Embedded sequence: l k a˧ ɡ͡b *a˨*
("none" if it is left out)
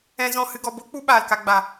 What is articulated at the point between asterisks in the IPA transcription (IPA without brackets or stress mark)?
a˨